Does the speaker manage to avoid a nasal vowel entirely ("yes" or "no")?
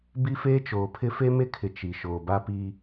yes